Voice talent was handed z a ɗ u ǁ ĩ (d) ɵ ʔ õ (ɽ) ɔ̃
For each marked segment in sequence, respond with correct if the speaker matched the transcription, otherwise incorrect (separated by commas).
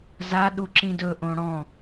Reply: correct, correct